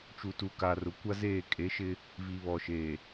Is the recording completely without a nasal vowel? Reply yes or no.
yes